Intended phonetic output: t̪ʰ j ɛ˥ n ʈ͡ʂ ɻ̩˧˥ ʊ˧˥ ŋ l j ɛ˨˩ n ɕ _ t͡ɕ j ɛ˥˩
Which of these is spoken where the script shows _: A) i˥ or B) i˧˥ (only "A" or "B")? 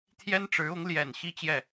A